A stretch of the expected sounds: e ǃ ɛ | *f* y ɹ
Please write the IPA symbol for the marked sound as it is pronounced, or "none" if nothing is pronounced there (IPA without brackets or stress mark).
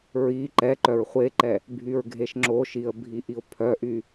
bʱ